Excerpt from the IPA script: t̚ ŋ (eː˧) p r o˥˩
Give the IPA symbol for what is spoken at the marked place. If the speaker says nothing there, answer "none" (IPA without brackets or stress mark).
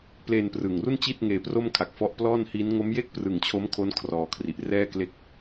eː˧